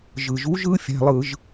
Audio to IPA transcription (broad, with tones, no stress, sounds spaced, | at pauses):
ʒ ɯ˩ ʒ u˨˦ ʒ ɯ˨˦ fʲ æ̤˩˧˩ lˠ ɯ˧˩˧ ʒ